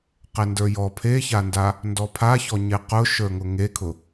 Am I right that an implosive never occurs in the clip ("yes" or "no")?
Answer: yes